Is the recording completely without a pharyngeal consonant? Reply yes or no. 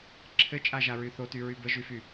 yes